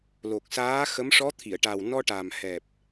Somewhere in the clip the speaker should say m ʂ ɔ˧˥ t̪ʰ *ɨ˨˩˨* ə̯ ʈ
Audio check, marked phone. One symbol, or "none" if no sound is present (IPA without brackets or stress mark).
i˨˩˨